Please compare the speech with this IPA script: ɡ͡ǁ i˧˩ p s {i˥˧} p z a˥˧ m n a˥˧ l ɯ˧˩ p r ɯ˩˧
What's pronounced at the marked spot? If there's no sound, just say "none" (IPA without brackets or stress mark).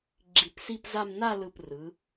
i˥˧